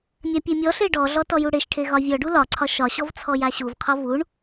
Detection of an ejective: absent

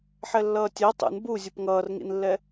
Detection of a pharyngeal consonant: present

